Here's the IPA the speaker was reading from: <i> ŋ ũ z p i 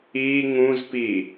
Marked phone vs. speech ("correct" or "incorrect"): correct